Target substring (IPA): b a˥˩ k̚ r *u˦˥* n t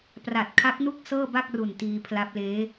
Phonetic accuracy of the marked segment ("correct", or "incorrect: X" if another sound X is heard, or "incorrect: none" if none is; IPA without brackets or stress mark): incorrect: u˨˩